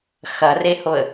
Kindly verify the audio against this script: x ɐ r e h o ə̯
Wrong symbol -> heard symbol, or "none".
none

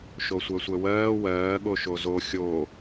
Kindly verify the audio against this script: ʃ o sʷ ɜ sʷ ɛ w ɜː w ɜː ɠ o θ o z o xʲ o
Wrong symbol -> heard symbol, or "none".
θ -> ʃ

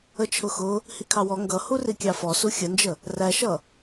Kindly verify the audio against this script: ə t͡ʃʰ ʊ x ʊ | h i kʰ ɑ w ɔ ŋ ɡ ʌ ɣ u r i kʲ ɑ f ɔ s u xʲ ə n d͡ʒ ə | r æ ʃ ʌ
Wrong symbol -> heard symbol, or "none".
ɣ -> h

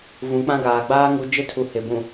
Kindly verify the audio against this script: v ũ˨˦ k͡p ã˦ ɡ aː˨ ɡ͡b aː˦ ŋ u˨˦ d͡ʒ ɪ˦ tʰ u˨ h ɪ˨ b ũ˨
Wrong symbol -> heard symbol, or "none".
none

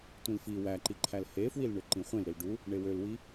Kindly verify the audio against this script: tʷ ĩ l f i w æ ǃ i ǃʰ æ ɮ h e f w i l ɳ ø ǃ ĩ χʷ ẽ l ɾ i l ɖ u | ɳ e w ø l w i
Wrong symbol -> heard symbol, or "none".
ɮ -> l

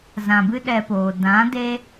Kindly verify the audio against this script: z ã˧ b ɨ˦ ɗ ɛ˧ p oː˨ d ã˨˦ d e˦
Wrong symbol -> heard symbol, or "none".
none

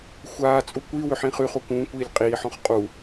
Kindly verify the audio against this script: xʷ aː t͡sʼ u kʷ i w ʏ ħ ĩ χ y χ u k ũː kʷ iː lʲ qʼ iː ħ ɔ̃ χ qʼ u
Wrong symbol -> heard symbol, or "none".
none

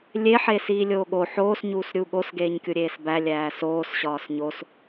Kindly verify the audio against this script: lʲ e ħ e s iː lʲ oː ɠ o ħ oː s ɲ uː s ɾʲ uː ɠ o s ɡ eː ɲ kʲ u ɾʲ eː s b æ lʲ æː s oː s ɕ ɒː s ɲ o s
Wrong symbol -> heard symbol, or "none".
none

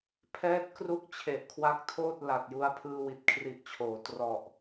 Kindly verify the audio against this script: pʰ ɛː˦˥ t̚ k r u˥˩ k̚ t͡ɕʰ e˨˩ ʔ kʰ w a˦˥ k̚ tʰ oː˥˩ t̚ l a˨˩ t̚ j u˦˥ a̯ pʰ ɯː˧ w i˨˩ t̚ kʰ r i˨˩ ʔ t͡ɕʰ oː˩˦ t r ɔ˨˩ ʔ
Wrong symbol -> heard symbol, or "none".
none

